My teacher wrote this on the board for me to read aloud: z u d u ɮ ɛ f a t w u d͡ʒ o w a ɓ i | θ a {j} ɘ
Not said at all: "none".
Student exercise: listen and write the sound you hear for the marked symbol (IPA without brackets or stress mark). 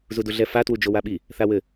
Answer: w